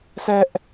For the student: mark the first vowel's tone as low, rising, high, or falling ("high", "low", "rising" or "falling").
high